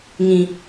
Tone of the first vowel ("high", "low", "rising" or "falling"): low